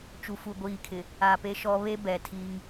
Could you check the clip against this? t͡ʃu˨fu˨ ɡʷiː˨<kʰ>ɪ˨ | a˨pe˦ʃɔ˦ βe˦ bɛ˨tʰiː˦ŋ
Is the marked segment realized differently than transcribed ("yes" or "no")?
no